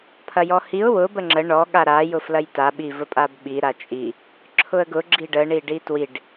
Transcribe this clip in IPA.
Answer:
pʰ ɐ j ɔ h i ʊ̯ w ʊ b ə ŋ͡ǁ ə ɳ ɔ ɠ a ɾ a j ʊ f l ɐ j t a ɓ i v ə pʼ a b ɓ i ɾ a t͡ʃʼ i | ǁʰ ʊ ə̯ ɡ ʊ ɡ͡ǁ i ɖ ə ɳ i ɖ i t w i ɖ

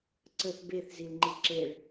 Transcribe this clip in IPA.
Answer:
ǀ ə θ b e θ z i l ŋ͡ǃ i ǁ e ɭ

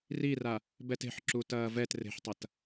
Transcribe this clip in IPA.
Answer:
r i r a | b ɛ t e̤ ħ ǁ u t ɐː v ɛ t r e̤ ħ tˤ ɐ t

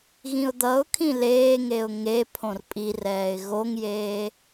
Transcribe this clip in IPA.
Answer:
ɣ ĩ ʊ̯ d̪ ʌ ʊ̯ kʰ ĩ l eː ŋ e ʊ̯ ŋ e pʰ õ r pʼ i r ɛː ɪ̯ ɣ o ŋ j eː

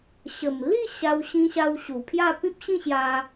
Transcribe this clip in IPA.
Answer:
ɕ ə˨˩ m l i˥˧ ɕ a˧ w ɕ ĩ˧ ɕ a˧ w ɕ u˨˩ pʰ j a˥˧ p ĩ˦ p̚ ɕ ĩ˥˧ ɕ j a˧

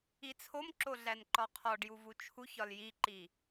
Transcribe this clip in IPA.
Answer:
i t͡sʰ o m ǁ o ɮ æ n ǃ ɒ qʰ ɒ ɖ j u v u t͡ʃʰ u ç ɒ l j i ǃ i

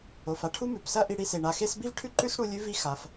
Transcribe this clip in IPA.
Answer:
o˩ f a˥ ʈʰ u˥ m ʉ˩ p s ɐ˥ ʔ i˧ ɽ i˧ s e˩ ɳ a˩ x e˥ s b i˥ v ʈʰ ʉ˥ ǃ ʉ˥ s ɽ u˧ lʲ ʉ˥ v i˥ x a˩ f

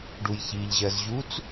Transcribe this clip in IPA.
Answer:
ɖ u j ç i ʎ ʑ ɜ z ʑ u t͡s

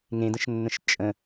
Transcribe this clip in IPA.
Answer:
ŋ ẽ d ə̃ ʃ nː ə̃ ʃ t͡ʃʼ ə̃

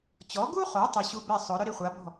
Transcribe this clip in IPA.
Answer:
t͡ɕ ɔ˩˥ ɡ u˥ χ o˩˥ tˤ ɪ˧ ɕ u˥ b ɛ˥˩ sˤ ʊ˩˥ ɾ ʊ˥ ɾ i˧ χʷ a˩˥ b ɔ̤˥˩

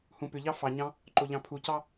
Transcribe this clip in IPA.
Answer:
h ũ p ʏ ʎ ɑ f ɑ ɲ ɑ̃ | ǃ o ʎ ɑ̃ pʰ u c ɑ

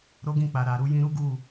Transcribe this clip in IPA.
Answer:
ɾ o˦ ɡ ĩ˦˨ k͡p a˨ ɾ a˨ ɾ u˧ j ĩ˧ ɾ u˦ ɡ u˦˨

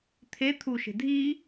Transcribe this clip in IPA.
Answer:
t̪ʰ e t̪ʰ u ʃ e̤ dʱ i

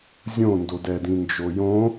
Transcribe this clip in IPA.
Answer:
zʲ õ n d o d ɛ d ĩ n d͡ʒ o j õ

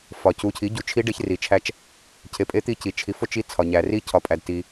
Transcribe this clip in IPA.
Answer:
f ɒ˩ c u˩˥ cʰ i˩˥ ɟ u˩˥ t͡ʃʰ i˧˥ ɖ e˧˥ ç r i˩ t͡ʃʰ æ˧˥ t͡ʃ | cʰ e˩˥ pʼ e˧˥ t̪ i˧˥ c i˩ t͡ʃʰ i˩˥ f o˧˥ t͡ʃ i˧˥ t͡sʰ ɒ˩ ɲ æ˩ r i˧˥ cʰ ɒ˩ pʼ æ˩ d t i˩

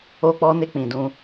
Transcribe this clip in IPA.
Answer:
o˧ k͡p ɔ˧ n e˧ k͡p ĩ˨ d ũ˧

